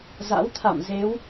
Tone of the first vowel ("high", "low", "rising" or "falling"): rising